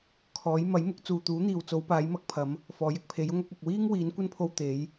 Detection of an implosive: absent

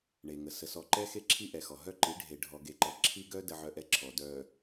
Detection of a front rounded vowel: present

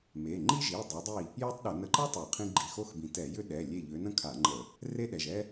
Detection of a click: present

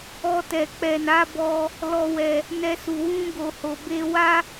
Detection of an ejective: absent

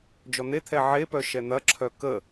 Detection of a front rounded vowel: present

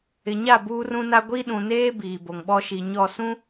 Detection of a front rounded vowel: absent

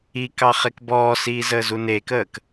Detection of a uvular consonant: present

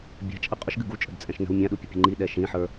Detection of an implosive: present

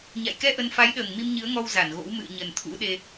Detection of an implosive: present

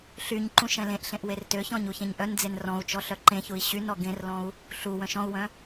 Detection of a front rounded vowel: present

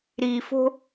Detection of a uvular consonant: absent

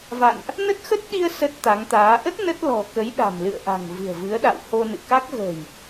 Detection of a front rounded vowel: absent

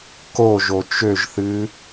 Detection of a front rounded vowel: present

